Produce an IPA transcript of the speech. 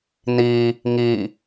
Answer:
n i | ŋ i

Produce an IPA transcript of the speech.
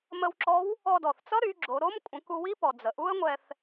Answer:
m ə˧ w ǁ ɔ˧˥ w | ɔ˧ d ɔ˩ θ t͡s ʌ˥ ɾ y˩˧ ɡ͡ǁ o˩˧ ɾ o˧˥ m kʷʼ ə̃˩˧ k u˧ w i˥ p ɔ˩ d͡z ə˩ ʔ u˥ ə̯ ŋʷ ɛ˧ θ

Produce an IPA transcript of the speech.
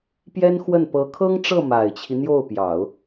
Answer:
p j ɛ˥ n x w ə˥˩ n p ɤ˧˥ kʰ ɤ˥ ŋ ʈ͡ʂ ɤ˥˩ m a˨˩ ɪ̯ t͡ɕʰ i˦ n̪ j o˥˩ ʊ̯ p j ɑ˨˩˦ ʊ̯

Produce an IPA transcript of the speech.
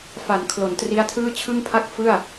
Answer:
f a˩˦ n kʰ l o˩˦ n t r i˦˥ a̯ tʰ ɯː˥˩ t͡ɕʰ ɯ˥˩ ŋ pʰ a˥˩ k̚ f ɯ˥˩ a̯

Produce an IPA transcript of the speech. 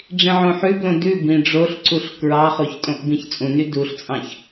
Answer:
ɖ͡ʐ ĩ ʕ õ ħ ʉ b l õ d ʉ b ĩ ɖ͡ʐ o ɬ ǀ u ɬ k ɹ ɑ χ o ç tʼ õ ʔ b ĩ ç t͡sʼ ũ n y d u ɬ t͡sʼ ɑ̃ ç

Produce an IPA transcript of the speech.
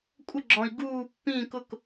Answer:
kʷʼ ə˥˧ ɡ͡ǁ ɔ̃˧ i̯ ɡ uː˥˧ pː ĩ˥˧ k ʊ˥˧ k

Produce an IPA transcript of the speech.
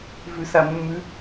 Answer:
v ʉ s a mː ʉ

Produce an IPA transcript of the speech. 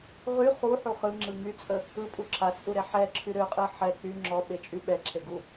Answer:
ʁ y χ u ħ u χ ɯ ŋ͡ǁ ɯ ŋ y t͡sʼ ə | ɯ pʼ u ǁʰ a t͡sʼ u ɾ e ħ ɛ ǁʰ y ɾ ø qʼ ɯ ħ ɛ k͡p y ŋ͡ǁ ɔ ɓ e t͡ʃʼ y ɓ ɛ ǁʰ e ɡ u

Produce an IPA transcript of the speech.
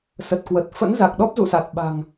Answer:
s ə˨˩ t̚ k w ə˨˩ t̚ f ə̰˧˥ n z a˨˩ k̚ ɗ ɔ˦˥ p̚ z ṵ˧˨ s a˨˩ t̚ ɓ a̤˨˩ ŋ

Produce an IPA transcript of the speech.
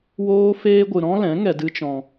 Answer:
w oː˦ f eː˦ ɡʷ ɨ˧ ɾ ɔ̃˦ l ɛ̃˨˦ ŋ ɛ˧ d ɨ˦ t͡ʃ ɔ̃˧

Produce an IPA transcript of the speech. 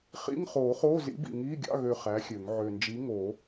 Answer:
χ ḭ˧˥˧ ŋ χ oː˨˩˦ χ oː˧˥˧ z ḭ˨˥ b ḭ˨˩ ŋ iː˧˥˧ ɡʲ ɑ̰˧˥˧ ɣ ø˦˨ χ æ˨˥ xʲ ø˨˩˦ ŋ ʕ ø˨˩ n d͡ʒ i˨˥ ŋ o˨˩˦

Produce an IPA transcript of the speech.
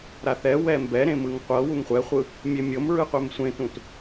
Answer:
ɾ a θ ɛ w ɛ m b ɛ ɾ ẽ m ɯ ŋ qʷ ɤ w u ŋ χʷ ɛ χʷ ɯ | mʲ e mʲ ɤ m ɹ ɯ qʷ ɛ m sʷ ẽ t ũ t

